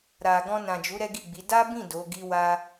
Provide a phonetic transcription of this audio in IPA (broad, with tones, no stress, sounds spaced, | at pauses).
ɾ a˨ ɡ ɔ̃˧ n ã˨ d͡ʒ u˨˦ ɾ ɛ˦ ɡ i˦˨ ɡ͡b i˨˦ d a˦ b ĩ˦˨ d o˨˦ ɡ i˦ w a˦